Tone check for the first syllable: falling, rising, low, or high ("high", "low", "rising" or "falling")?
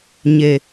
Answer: low